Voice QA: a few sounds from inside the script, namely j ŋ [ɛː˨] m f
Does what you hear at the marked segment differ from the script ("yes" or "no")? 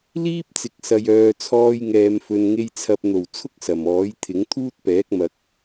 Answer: yes